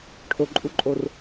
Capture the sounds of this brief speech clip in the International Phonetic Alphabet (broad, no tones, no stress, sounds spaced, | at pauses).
ʈʰ o ǃʼ u ǃʼ o r